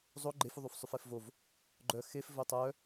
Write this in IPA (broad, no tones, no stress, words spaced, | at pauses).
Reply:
zˤo ɡ͡ǃefuðˤufsˤʉf ɛfvov | ɡ͡ǃœ xef vɵtˤœ